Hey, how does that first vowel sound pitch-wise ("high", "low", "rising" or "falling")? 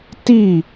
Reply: falling